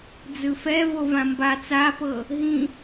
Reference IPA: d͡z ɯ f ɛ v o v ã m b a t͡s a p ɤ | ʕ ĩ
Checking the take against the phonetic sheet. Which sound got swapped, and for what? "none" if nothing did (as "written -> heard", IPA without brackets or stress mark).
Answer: ʕ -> ɦ